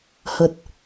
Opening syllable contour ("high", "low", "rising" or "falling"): low